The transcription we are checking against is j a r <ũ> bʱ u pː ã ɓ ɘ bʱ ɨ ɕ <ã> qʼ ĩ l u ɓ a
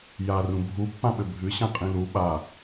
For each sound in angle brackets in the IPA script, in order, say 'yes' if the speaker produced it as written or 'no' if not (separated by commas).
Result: yes, yes